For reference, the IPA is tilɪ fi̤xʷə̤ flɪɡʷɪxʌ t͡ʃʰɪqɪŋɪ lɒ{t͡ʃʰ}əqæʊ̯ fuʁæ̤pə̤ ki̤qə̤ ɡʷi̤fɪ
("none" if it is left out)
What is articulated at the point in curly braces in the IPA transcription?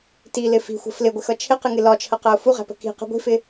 t͡ʃʰ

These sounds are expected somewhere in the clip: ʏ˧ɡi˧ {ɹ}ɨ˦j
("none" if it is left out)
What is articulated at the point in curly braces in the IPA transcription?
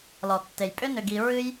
ɹ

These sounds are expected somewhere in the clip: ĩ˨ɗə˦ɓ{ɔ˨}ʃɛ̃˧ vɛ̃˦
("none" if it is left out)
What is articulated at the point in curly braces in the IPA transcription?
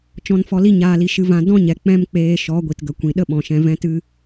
ɔ̃˨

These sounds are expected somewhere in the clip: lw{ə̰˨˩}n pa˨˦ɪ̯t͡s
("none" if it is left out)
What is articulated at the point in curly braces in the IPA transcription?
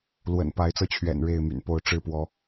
ə̰˨˩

